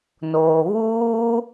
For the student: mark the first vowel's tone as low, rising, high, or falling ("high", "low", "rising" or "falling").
low